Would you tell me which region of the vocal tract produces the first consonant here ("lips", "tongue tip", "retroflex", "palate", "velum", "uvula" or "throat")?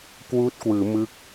velum